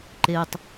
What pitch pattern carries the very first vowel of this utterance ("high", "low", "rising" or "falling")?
low